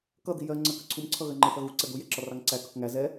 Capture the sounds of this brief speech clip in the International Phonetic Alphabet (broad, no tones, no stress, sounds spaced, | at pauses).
k ʌ d̪ i j ɜ ŋ͡ǀ ɜ k ə ǀʰ u m ǀʰ ʌ ɣ ɜ ŋ͡ǃ ɪ θ ʌ ɣ u ǀ ɛ d̪ u j ɛ ǁ ɒ r ɑ ŋ ǀ æ k ʌ k ŋ æ z ɛ